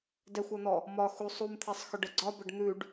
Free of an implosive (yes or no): yes